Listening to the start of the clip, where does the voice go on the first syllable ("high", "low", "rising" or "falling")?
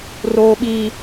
high